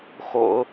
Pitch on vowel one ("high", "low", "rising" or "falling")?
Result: low